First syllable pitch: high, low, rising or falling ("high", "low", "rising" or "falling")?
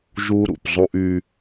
high